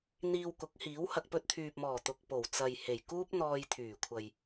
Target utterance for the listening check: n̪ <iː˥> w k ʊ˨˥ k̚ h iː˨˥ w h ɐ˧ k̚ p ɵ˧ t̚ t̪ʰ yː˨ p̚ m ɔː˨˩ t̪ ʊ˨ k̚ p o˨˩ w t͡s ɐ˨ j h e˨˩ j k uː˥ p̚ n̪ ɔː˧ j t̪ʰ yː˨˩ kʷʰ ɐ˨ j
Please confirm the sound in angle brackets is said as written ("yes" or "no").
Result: no